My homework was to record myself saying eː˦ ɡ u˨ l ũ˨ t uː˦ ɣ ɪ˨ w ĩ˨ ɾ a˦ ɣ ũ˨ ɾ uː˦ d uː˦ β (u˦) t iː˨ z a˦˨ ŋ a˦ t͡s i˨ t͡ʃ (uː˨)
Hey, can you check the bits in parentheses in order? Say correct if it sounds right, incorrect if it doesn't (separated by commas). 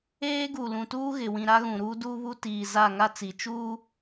correct, incorrect